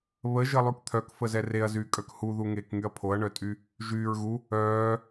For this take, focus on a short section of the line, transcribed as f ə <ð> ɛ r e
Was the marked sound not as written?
yes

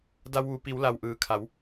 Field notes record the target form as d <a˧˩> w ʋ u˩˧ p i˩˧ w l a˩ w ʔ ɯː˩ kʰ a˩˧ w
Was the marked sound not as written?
yes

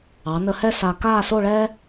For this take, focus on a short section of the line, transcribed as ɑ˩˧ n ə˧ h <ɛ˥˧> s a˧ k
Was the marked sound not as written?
no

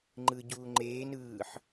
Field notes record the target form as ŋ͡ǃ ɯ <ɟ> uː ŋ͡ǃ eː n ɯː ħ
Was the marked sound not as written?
no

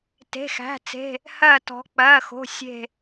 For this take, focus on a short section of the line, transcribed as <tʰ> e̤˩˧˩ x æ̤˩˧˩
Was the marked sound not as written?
yes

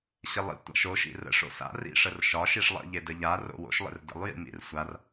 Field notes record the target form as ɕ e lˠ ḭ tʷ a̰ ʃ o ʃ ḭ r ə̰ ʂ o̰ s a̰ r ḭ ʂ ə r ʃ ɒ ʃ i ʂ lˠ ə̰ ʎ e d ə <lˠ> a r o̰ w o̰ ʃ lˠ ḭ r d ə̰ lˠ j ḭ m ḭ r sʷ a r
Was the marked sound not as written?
yes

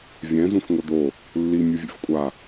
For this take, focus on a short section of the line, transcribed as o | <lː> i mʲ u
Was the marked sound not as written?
no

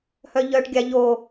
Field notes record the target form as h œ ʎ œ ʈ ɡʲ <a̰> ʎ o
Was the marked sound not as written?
yes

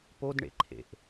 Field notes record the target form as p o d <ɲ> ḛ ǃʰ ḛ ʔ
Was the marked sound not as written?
yes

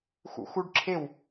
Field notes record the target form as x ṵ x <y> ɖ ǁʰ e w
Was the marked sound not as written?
yes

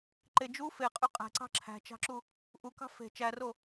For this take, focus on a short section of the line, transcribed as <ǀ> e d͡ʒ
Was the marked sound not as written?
yes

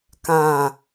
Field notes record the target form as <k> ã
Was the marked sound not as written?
no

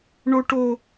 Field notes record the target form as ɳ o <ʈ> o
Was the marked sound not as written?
no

